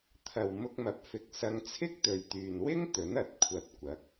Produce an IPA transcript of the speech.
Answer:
t̪ʰɐ˨w mʊ˧k̚mɐ˨p̚fɪ˨k̚ sɐ˧ŋt͡sʰɪ˥k̚t̪ɵ˨ɥt̪yː˨n wɪ˥ŋ t̪ɵ˨˥nɐ˨˥t̚kʷʰɐ˧t̚ kʷɐ˨˥k̚

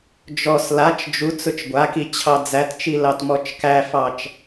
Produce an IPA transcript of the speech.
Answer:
d͡ʒɔs lat͡ʃ d͡ʒu t͡sʊt͡ʃɡʷaki t͡ɕʰɑd͡zætt͡ʃi lɑtmɔt͡ʃkæfɑt͡ʃ

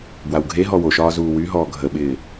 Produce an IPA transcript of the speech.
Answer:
bwawɡʱeɦɔ woʃɒː zuːwyɦɔː ɡʱəɓɪː

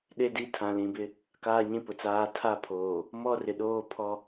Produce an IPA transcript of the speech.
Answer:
ɗe˦di˦ tʰã˨lĩ˨bɪ˦ | kaː˦ɲĩ˦pʊ˨t͡saː˦ tʰa˦pʰoː˨ | mɔ˦rɪ˨ɗoː˦pʰɔ˦

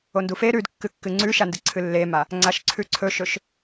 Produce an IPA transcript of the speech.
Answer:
ondufe ɾʉdkːɨkːɨ ŋ͡ǀʉʃandɨ ǀʰɨlːema | ŋ͡ǀaʃǀʰʉǀʰɵʃɵʃ

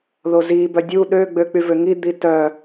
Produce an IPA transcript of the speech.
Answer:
ðozi bœdʲu ɗø ɡ͡bøk͡pyvøŋi d̪itœ

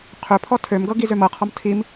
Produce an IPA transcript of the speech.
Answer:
qʰɵpʰɔ tʰømɡɤ ɡizømɤqʰɔm tʰim

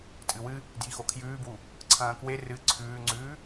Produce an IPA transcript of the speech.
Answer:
tʼɨwɨ | djixokʰjʉːbwu | ǀʰɐ̃ːkwe rɨ ǀʰʉːŋ͡ǀʉː

